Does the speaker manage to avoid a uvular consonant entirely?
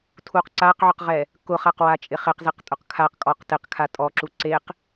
no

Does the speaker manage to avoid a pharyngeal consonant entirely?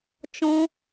yes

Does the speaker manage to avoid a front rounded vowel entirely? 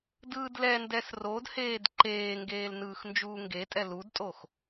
yes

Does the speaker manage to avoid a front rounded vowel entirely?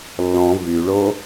no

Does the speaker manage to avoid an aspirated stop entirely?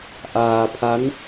no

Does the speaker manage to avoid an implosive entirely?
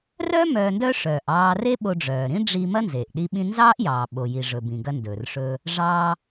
no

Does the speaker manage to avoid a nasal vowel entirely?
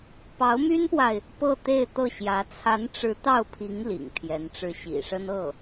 yes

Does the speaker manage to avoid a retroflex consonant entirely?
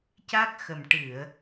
no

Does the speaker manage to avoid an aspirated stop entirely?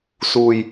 yes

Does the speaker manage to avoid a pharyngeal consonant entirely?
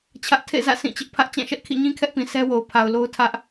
yes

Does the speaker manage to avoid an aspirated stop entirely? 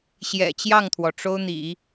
no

